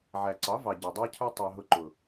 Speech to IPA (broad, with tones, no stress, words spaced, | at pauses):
ʕæ˨ǀɑ˨˦vɑ˨ ɟɛ˨ dˤɑ˦cʰə˞˦tˤɑ˧ɦʊ˧ ǃʊ˨